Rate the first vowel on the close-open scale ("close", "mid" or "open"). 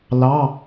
open